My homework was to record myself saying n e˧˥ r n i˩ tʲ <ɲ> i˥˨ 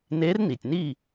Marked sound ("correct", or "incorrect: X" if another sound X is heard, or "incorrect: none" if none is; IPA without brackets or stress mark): incorrect: n